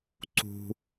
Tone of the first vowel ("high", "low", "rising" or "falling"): high